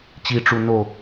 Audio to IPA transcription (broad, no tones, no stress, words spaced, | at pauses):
t͡ɕiʈ͡ʂu no